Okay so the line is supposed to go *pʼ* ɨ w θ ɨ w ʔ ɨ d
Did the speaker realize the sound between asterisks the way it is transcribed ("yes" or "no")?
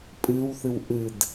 yes